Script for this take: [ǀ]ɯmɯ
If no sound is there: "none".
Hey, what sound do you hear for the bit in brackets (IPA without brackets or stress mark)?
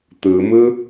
t̪